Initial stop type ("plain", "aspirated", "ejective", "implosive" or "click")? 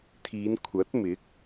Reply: aspirated